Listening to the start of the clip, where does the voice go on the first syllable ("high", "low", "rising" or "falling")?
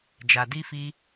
low